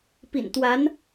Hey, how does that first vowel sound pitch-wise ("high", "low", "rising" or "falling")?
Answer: low